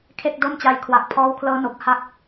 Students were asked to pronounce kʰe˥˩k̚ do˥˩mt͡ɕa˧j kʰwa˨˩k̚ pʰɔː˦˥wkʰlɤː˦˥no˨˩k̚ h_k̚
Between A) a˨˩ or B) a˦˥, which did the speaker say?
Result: B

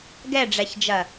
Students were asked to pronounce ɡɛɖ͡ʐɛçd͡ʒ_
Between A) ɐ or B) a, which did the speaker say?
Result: A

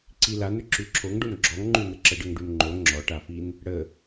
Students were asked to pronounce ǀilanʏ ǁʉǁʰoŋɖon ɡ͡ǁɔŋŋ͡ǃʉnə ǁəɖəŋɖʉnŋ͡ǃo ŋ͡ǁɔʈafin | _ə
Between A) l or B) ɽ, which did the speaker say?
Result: B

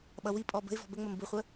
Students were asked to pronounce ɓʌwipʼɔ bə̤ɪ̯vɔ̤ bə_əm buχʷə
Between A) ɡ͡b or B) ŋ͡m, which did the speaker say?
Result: B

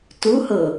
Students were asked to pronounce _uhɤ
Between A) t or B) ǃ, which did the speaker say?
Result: A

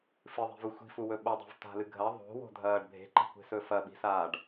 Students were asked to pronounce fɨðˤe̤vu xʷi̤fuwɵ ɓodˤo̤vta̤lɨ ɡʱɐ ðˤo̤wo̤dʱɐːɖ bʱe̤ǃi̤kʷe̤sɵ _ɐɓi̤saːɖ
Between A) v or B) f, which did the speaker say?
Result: B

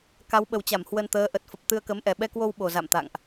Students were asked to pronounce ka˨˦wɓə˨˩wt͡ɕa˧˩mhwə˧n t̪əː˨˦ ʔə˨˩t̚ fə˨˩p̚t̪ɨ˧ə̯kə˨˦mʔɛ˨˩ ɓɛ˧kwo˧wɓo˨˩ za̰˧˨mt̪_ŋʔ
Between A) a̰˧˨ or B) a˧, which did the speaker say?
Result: A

